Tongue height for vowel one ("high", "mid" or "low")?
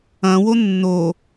low